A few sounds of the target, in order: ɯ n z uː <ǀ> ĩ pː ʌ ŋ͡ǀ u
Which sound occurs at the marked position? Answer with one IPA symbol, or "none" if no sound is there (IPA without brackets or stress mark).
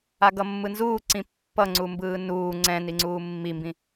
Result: ǀ